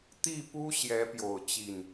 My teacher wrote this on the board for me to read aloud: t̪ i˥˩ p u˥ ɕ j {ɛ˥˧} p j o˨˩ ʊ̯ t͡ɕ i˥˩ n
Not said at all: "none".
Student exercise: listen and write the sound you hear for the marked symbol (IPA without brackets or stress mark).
ɛ˧˥